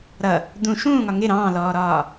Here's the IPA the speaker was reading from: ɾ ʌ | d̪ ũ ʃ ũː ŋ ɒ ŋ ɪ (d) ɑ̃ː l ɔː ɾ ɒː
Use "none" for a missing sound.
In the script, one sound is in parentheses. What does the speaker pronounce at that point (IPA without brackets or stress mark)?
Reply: ɾ